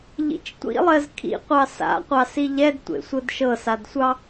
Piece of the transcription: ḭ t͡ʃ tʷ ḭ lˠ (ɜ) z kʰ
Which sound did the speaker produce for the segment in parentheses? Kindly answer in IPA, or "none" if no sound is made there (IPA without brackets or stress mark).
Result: ɜ